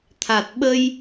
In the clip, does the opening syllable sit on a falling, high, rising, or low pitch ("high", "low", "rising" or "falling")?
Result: low